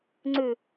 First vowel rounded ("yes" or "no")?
yes